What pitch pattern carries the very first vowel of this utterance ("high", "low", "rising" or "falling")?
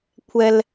high